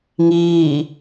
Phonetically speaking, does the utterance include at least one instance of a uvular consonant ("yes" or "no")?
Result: no